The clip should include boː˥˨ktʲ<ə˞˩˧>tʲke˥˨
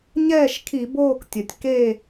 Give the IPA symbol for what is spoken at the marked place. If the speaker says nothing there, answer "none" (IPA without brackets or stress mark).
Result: ɐ˩˧